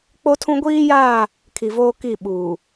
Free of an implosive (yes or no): no